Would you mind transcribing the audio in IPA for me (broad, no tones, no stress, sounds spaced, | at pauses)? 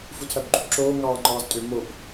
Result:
f u tʰ æ b ɡ͡ǃ u b ǁ oː ŋ ɑː ŋ͡ǃ ɑː z tʼ ø m o b